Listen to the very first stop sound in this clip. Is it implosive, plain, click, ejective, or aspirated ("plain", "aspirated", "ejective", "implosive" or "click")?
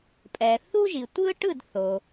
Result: ejective